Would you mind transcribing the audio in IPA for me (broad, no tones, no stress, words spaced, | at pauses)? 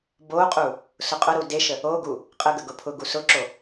boqʼu | sʊqʼʊɾu deʃə | oɡu | qʼəɡə ɡʊpʰʊɡu sʊǁo